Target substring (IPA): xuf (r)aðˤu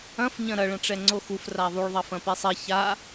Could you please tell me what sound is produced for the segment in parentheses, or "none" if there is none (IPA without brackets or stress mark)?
r